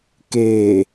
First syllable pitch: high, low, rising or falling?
low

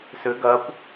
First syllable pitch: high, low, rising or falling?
rising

